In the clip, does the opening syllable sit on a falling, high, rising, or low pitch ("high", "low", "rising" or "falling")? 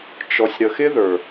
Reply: low